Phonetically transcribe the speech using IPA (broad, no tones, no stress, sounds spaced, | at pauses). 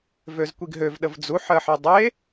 v ø z kʷ i ɡ ɦ ø v ɗ ə v d͡z u ħ ɜ ħ e dˤ e